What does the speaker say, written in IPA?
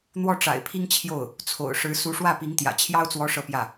n̪ w ɔ˥˩ ʈ͡ʂ a̰˨˩ ɪ̯ pʰ i˥ ŋ t͡ɕʰ j o˥˩ ʊ̯ | t͡sʰ o̰˨˩ ʊ̯ ʂ ɻ̩˧˥ s u˧˥ ʂ w ä˥˩ p i˧˥ ŋ t̪ j ä̰˨˩ t͡ɕʰ j ɑ˥ ʊ̯ t͡s w ɔ˧˥ ʂ ɤ˥˧ p j ä˥˩

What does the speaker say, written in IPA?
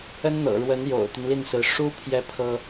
ə˥ n n̪ ɤ̰˨˩ ɻ w ə˧˥ n j o̰˨˩ ʊ̯ t̪ y˦ n l i˥˩ n s ɹ̩˧˥ ʂ u˥ pʰ j ɛ˥ pʰ ɤ˥

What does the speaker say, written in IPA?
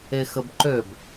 e x ə b ǃ ø b

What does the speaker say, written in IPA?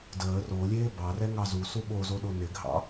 d əː r o lʲ eː b ɑ r ɛ ŋ ɑ z u s u ɓ o z o ɗ o n ɪ ɡʱ ɑ̰

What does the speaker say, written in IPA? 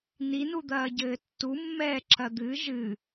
n i n u d̪ ɐː ɟ ɘː tː u mː ɛː ǁ ɐ d̪ ɨ ʒ ɨ

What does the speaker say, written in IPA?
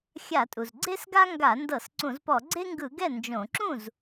xʲ a˧˩˧ tʼ u˩ z ɡ͡ǀ e˥ s ɡ a˥ ŋ ɡ a˧˩˧ n d ɤ˧˩˧ s ǀ ũ˧˩˧ z p ɔ˧˩˧ ɡ͡ǀ e˥ ŋ ɡ ɯ˧˩˧ ɡ ɛ˥˩ n d͡ʒ õ˧˩˧ ǁ ũ˥˩ z

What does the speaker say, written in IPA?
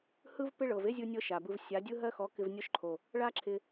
h ɯ˦ v p ɪ˦ ɭ ɤ˨ v e˦ zʲ ɯ˧ nʲ ɤ˧ ʃ a˨ b ɯ˧ v sʲ a˨˦ dʲ ɯ˦ ɦ ɜ˦ x ɔ˨˦ k ɪ˧ v nʲ ɔ˧ ʃ ǃʰ o˨ | ɭ a˦ ǁʰ ɪ˧

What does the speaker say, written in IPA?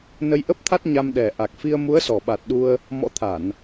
n ə˧ j ʔ ə˦˥ p̚ t̪ʰ a˦˥ t̚ ɲ a˧ m ɗ ɛ˨˩ ʔ a˨˩ k̚ f i˧ ə̯ m u˨˦ ə̯ s ɔ˨˩ ɓ a˨˩ t̚ ɗ u˧ ə̯ | m ɔ̰˧˥ t̪ʰ a˧˩˨ n

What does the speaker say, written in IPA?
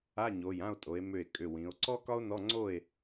a˧˥˧ ɲ o˩˧˩ j ã˥˨ o̯ tʼ o˩˧ e̯ m ʏ˧˩ e̯ kʼ ʏ˩˧˩ w ĩ˩˧ o̯ ǀ ɔ˥ k ɒ˥ o̯ n ɔ˧˥˧ ŋ͡ǀ o˥˨ e̯

